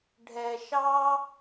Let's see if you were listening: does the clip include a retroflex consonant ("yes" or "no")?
yes